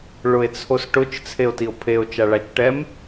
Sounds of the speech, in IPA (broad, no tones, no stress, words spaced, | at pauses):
ɭʊe̯t͡sʰosʈʊt͡ʃ t͡sʰeo̯tio̯pʰeo̯ t͡ʃaɭat͡ʃʈɛm